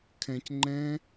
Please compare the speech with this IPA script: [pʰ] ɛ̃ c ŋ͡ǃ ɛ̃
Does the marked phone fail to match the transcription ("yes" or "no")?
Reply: yes